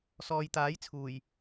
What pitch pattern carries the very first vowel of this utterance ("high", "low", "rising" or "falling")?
low